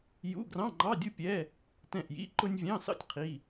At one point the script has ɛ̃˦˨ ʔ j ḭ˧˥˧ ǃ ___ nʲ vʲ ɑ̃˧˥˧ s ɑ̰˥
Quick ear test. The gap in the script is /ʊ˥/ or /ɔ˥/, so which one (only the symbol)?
ʊ˥